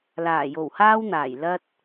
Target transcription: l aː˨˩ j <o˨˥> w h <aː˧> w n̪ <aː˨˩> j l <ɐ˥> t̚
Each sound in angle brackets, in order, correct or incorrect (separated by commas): incorrect, incorrect, correct, correct